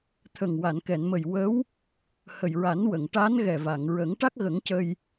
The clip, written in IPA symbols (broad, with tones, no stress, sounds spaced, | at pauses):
t̪ʰ ə˨˩ ŋ w a˨˩˨ n k ɛ˨˩˨ n m ə˨˩ j w ə˧˥ w | h ə˨˩ j ɹ a˨˩˦ n w ə˨˩˨ ŋ ʈ a˧˥ n ɣ ɛ˨˩ v a˨˩˨ ŋ ɹ ə˨˩˦ ŋ ʈ a˦˥ k̚ ɣ ə˨˩˦ ŋ c ə˧ j